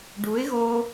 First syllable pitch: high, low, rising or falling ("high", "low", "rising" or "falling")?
rising